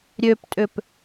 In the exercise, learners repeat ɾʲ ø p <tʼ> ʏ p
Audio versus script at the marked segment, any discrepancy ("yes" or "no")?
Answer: no